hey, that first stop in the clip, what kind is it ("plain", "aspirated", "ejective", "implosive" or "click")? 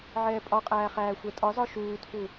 ejective